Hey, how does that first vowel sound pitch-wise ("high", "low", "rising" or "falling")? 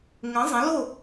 rising